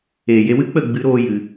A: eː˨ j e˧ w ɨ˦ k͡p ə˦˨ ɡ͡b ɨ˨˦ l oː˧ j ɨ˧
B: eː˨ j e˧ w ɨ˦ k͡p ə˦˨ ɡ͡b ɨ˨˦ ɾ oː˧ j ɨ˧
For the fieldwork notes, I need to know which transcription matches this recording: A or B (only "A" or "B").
B